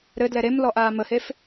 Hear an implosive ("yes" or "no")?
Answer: no